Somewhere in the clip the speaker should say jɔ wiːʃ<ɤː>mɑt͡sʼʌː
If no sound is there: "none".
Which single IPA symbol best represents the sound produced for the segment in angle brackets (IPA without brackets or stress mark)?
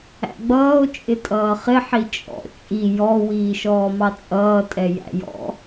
ɔː